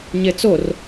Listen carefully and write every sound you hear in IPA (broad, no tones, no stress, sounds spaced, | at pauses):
ɲ e t͡s o r